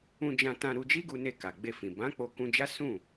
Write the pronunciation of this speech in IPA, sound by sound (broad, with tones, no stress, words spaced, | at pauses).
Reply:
ũ˧d͡ʒã˧ tã˧ ɾu˧d͡ʒi˦ɡu˧ne˧ ka˨ɡ͡be˧fĩ˨ bã˨˦ k͡po˧kũ˧d͡ʒa˦ sũ˦˨